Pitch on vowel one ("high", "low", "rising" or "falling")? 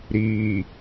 low